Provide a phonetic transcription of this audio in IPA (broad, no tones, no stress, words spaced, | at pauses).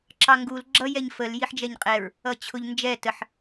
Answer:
ǁɑŋɡul ɡ͡ǁʌ jɛɲfəl jiħd͡ʒɛɲqʼɛɹ | ʌt͡ɕʰʊʎ nd͡ʒɛ təħ